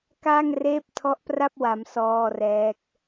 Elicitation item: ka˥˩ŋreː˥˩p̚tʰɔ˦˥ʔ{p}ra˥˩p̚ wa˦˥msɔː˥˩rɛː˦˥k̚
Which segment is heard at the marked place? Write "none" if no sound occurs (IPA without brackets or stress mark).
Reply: p